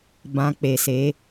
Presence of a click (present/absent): absent